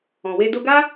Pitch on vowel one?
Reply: low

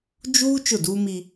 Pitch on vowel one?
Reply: high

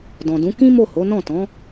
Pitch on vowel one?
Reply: low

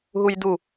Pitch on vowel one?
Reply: high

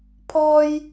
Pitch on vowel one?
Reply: high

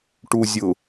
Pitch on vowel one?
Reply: low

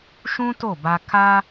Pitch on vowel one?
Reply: high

